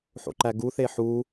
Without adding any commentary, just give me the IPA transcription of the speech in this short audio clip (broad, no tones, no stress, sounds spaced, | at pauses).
ħ o̰ ǃ æ ɡ u θ e ħ u